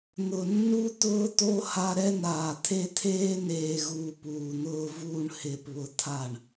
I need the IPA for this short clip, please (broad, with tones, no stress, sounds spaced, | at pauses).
n̪ ʊ˨ nː u˦ t̪ ʊː˦ t̪ o˦ h a˦ ɾ ɛ˦ n̪ aː˨ t̪ʰ e˦ t̪ʰ eː˦ n eː˨ ɣ uː˨ p uː˨ n̪ ʊː˦ v uː˦ ɳ h ɪː˨ p β ʊ˨ t̪ʰ a˦˨ ɳ